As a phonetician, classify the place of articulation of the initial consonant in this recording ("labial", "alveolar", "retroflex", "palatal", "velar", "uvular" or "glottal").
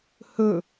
glottal